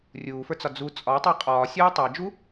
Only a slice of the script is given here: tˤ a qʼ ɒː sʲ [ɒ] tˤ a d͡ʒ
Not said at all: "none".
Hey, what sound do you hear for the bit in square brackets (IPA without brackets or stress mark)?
ɒː